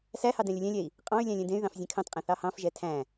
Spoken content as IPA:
s æ h ɑ d ɛ̃ lʲ ɵ lʲ ɛ̃ lʲ ɛ i̯ | qʼ ɑ̃ y̯ lʲ æ̃ lʲ ɛ̃ d ẽ y̯ ð ɑ̃ f zʲ ẽ kʰ ɑ̃ t qʼ ɛ̃ θ ɑ h ɑ̃ f ʒ ɛ tʰ æ̃

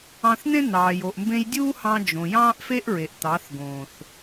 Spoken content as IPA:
ɑ̃˧ θ n̪ ẽ˦ n̪ ɑː˨ j o˨ ʔ m b ẽ˧ j dʲ uː˦ h ɑ̃˧ d͡ʒ õ˨ j ɑ̃ː˦ ʔ f e˦ ʔ ɹ e˨ ʔ t̪ ɑ˨˦ θ ɡ õː˨ θ

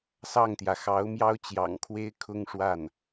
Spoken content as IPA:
s ɑ˥˩ ŋ t̪ j ä˩ x ɑ˧˥ ʊ̯ m j ɑ˥ ʊ̯ t͡ɕ j ɑ̰˨˩ ŋ kʰ w e˥ ɪ̯ kʰ ʊ˥ ŋ ʂ w a˥˩ n

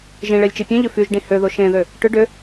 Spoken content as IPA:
ʒ ĩ ɭ e lʲ t͡ʃ i pʲ ẽ ʎ ʏ f y ʒ ɖ ĩ h ø ð o ʃ ẽ ð ø | ʈ ʏ ɖ ʏ

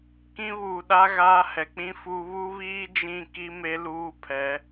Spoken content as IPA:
k ĩ˦ β uː˨ ɗ a˦ ɣ aː˦ h ɛ˨ k͡p ĩ˦ f u˦ β u˦ β iː˦ d͡ʒ ĩ˦˨ k i˦ m e˦ l uː˦ pʰ ɛ˨˦

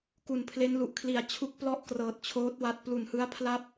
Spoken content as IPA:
k u˨˩ n pʰ l e˦˥ n l u˨˩ ʔ kʰ l i˨˩ a̯ t͡ɕʰ u˦˥ k̚ p l ɔ˥˩ ʔ k r ɤː˨˩ t̚ t͡ɕʰ oː˦˥ t̚ w a˦˥ t̚ p l u˨˩ n h ɯ˦˥ a̯ pʰ l a˥˩ p̚

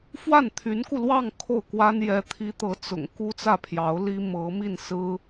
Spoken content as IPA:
f w a˥˩ n t̪ʰ y˧˥ n k u˧ l w ɑ˥˧ ŋ kʰ o˥˩ ʊ̯ k w a˥ n j ɛ˧˥ t̪ʰ i˧˥ t̪ ɤ˧˥ t͡s ʊ̰˨˩ ŋ k u˥ t͡s ä˥˩ pʰ j ɑ˧˥ ʊ̯ l i˥ m ɤ˧˥ m i˥˩ n s ɹ̩˥

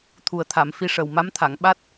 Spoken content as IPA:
t̪ʰ u˨˩ ə̯ t̪ʰ a˨˩˨ m f i˧ ʂ ə˨˩ w m a˧˥ m t̪ʰ a˨˩˨ ŋ ɓ a˦˥ t̚

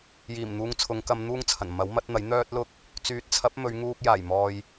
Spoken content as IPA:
j iː˨˩ m n̪ uː˧ ŋ t͡sʰ ʊ˨˧ ŋ k ɐ˧ m n̪ uː˥ ŋ t͡sʰ ɐ˨˩ n m ɐ˨˥ w m ɐ˨˥ t̚ n̪ ɐ˨˥ j n̪ œː˥ t̚ l ʊ˥ k̚ | t͡s yː˨˥ t̚ t͡sʰ ɐ˨˥ p̚ m ɵ˨˧ ɥ ŋ uː˧ k̚ j aː˨˩ j m ɔː˨ j

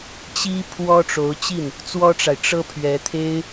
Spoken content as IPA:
t͡ɕ i˥ pʰ w ɔ˥ ʈ͡ʂ o˧˥ ʊ̯ t͡ɕ i˥˩ n | t͡s w ɔ˥ ʈ͡ʂ a˨ ɪ̯ ʈ͡ʂ ɤ˥ pʰ ɥ ɛ˧˥ t̪ʰ e˥ ɪ̯

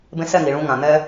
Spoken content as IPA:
b ẽ˧ s ɛ˦˨ ŋ i˨ ɭ ũ˧ ŋ ã˨ n̪ ɛ˧

